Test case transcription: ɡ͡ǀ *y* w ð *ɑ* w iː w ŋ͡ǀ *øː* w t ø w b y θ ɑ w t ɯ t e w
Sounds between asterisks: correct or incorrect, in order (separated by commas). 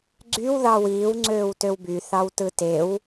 correct, correct, correct